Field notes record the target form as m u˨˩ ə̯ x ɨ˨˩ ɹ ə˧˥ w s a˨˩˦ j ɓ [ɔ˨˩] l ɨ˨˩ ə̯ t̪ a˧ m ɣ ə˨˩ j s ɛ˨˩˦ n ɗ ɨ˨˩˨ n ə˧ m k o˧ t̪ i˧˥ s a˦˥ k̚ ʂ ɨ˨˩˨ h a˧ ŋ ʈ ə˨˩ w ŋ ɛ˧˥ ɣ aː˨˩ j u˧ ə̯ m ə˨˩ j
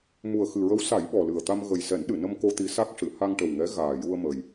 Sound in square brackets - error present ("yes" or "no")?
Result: no